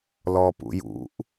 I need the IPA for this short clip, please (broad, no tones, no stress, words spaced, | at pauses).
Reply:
lɔpṵjṵʔ